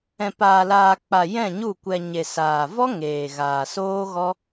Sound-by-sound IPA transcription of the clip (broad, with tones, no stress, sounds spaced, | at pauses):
ɛ̃˨ p aː˨ l aː˨ k͡p a˨ j ɛ̃˦˨ ɲ u˦˨ kʷ ɛ˧ ɲ e˨ s aː˨ v ɔ˦ ŋ eː˨ ɣ aː˨ s oː˦ ɣ ɔ˦